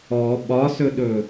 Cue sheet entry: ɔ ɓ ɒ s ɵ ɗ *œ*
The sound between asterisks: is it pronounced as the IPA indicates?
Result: no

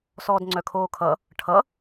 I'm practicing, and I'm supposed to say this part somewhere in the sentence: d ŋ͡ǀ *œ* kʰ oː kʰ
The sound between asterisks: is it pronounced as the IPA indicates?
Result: yes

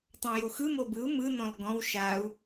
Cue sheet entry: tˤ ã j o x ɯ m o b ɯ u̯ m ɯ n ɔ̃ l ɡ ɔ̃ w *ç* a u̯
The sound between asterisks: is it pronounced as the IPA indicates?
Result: no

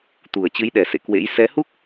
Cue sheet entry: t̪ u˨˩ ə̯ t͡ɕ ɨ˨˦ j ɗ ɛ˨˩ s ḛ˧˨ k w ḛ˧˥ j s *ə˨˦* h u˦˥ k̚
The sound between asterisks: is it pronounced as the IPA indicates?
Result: no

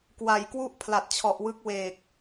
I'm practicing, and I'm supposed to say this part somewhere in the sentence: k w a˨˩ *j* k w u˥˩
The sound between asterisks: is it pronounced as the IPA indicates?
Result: yes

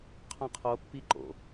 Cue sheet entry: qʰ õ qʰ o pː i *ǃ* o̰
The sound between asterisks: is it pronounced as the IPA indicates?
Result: yes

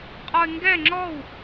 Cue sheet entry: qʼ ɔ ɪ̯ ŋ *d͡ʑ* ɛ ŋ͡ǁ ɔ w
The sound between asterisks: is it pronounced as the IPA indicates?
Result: no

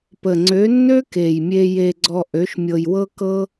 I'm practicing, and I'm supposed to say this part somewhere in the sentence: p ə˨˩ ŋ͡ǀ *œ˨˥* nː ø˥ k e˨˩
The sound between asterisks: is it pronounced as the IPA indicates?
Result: no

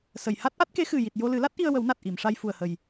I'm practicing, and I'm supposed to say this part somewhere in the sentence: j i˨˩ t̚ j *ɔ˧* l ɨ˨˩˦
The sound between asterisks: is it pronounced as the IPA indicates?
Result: no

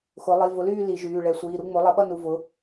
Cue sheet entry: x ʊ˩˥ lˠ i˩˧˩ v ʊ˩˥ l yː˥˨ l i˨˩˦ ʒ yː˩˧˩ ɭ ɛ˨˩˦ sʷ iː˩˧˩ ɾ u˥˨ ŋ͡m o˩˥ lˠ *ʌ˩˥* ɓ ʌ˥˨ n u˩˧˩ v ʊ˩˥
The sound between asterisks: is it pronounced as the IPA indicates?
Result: yes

